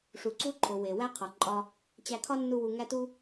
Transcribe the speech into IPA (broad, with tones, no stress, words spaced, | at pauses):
ʂu˨ǀu˦ǃʰo˨ we˨wæ˦ qʰɒ˨ǃʼɒ˧ | t͡ɕæ˧kʰɒ˦nːu˧ wu˧ŋæ˦tu˦